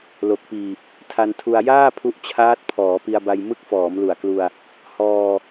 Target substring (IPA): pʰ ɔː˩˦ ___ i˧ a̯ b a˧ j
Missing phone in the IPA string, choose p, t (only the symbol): p